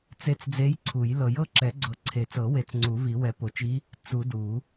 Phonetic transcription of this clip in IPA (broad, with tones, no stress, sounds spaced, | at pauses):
t͡s e˧˥ t͡s d͡z e˧˥ j ǀʰ u˨˩˦ j l ɤ˨˩˦ j ɤ˧˥ ǁ ɛ˨˩˦ ɡ͡ǀ ɤ˨˩˦ ǀʰ e˨˩˦ t͡s ɤ˨˩˦ w e˨˩˦ t͡s ŋ͡ǀ u˨˩˦ v i˨˩˦ w ɛ˨˩˦ p o˨˩˦ t͡ʃ i˧˥ | t͡s u˨˩˦ d u˨˩˦